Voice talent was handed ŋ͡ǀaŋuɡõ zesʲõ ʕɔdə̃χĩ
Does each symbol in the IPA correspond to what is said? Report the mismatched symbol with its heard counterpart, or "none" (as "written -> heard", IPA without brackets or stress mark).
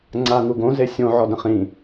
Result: none